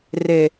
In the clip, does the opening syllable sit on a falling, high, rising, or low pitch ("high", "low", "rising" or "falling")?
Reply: low